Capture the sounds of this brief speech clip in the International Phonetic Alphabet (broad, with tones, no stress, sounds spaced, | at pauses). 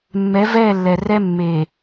mː ɛ˨˦ v ɛː˦˨ lː ɛ˨ r ɛ˦ mː e˨